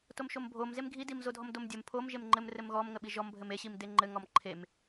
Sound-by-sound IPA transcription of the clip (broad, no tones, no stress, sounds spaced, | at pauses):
t o m ʃ o m bʱ o m z e m ɡʱ i d i m z o dʱ ɔ m d o m dʲ ə m pʰ o m ʒ e m ŋ͡ǃ ɘ m r ɘ m ɣ ɔ m ŋ ə ɓ i ʒ ɔ m bʱ ɘ m e ɕ i m d e ŋ͡ǃ ɘ ŋ ɔ m ǃʰ e m